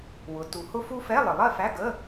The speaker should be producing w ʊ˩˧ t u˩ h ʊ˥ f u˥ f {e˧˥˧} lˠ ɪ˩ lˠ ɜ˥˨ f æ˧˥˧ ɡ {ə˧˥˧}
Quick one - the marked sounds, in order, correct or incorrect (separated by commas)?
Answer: incorrect, correct